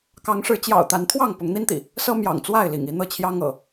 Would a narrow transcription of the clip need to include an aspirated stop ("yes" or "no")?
yes